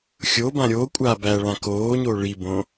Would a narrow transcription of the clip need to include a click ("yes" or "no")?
no